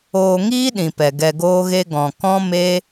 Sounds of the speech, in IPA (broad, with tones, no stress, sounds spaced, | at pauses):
oː˧ ŋ iː˦ ɗ ĩ˨ p ɛ˨ ɡ ɛ˧ ɡ oː˦ ɣ e˦ ɡ ɔ̃˧ k ɔ̃˦ m e˦